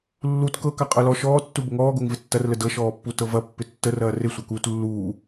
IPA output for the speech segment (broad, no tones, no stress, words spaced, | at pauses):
lːut kɤka qʼɤlɔ ʃɔːtːu bəŋɔːɡoŋ vɪtːɐrlə dɤʃɔːpːu tɤvɐ pːɪtːərɐː rɪsʷɐkuːt lːuː